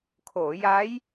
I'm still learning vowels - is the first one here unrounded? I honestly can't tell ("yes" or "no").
no